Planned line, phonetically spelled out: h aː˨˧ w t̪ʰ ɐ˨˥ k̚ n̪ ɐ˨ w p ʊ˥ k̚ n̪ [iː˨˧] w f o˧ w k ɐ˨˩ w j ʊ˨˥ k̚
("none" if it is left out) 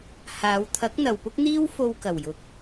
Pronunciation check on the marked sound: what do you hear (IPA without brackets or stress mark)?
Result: iː˥